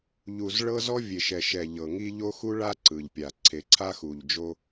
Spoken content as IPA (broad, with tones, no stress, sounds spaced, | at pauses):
ʎ u˨ z ɭ ɤ˦ z ɔ˦ vʲ e˨ ʃ ɛ˨ ʃ ɛ˨ ʎ ɤ˨ ŋ i˦ ʎ o˦ x u˦ ɭ a˦ ǀ ɯ˨ ʎ pʲ a˨ ǀʰ e˨ ǀʰ a˦ x u˨ ʎ d͡ʒ o˦